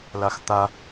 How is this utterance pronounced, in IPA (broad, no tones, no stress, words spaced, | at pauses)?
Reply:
laxt̪a